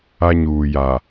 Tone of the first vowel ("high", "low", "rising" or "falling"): high